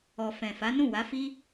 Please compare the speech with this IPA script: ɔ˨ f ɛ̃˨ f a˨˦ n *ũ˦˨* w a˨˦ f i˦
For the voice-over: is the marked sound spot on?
yes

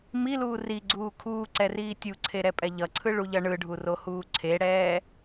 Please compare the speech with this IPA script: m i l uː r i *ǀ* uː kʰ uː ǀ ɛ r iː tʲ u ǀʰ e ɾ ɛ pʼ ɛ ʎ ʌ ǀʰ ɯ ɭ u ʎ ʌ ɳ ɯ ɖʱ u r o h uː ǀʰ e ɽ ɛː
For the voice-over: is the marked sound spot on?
no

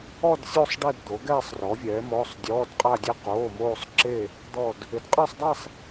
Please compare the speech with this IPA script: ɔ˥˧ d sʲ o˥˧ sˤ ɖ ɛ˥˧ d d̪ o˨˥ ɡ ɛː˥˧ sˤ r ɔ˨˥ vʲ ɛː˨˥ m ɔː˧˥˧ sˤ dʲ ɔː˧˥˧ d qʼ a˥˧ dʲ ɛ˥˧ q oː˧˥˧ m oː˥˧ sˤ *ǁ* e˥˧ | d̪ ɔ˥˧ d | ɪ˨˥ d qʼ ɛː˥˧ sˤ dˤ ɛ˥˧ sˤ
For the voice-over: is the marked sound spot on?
yes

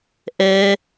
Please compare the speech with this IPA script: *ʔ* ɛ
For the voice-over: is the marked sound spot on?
yes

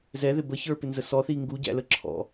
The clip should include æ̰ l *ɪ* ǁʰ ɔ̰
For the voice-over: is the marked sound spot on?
no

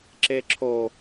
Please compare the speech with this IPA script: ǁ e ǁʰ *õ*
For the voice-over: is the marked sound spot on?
no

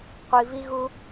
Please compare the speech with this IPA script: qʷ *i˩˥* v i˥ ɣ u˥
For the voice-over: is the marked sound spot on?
no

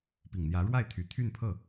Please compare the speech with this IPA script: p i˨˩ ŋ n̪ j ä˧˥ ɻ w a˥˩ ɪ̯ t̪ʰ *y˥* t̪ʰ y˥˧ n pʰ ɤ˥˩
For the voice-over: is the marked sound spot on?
no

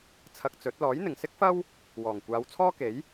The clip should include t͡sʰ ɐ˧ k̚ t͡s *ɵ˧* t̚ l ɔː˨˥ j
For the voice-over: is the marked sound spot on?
no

